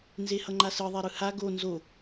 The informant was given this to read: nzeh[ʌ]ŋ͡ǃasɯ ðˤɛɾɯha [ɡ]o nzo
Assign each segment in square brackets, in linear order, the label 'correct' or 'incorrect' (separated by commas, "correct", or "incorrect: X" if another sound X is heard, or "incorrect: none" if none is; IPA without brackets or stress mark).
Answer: correct, correct